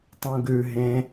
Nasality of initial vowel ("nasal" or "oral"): nasal